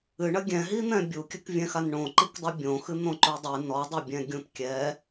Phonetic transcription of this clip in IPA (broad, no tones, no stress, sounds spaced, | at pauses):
ɨ ɳ ɐ ɡʲ ɛ̃ ɦ i n̪ ɛ̃ bʲ u kʲ ɘ k vʲ ɛ̃ x a n ɳ õ ǃ i k dˤ ɨ bʲ õ x ɨ n̪ õ ǃ o dˤ ɨ n ɔ dˤ ɘ bʲ ɛ̃ ɡʲ ũ t kʲ ɛ